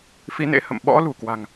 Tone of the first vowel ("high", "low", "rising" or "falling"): rising